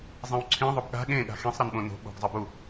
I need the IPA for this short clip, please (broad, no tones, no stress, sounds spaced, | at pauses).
zˤ ĩ w ǀʰ ĩ ðˤ o b ɠ a̤ ɠ ẽ ɠ a̤ x ĩ sˤ ɾ ɯ n ɓ õ n o̤ ɓ o̤ ɡ zˤ ɯ b u